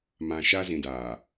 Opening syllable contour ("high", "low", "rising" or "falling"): low